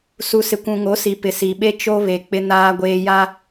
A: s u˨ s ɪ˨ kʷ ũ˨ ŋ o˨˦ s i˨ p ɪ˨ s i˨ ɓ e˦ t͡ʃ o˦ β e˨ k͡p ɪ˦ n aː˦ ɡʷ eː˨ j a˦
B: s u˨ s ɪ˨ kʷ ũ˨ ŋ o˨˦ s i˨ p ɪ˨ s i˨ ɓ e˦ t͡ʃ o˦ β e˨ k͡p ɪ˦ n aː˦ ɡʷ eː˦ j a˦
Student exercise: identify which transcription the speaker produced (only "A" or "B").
B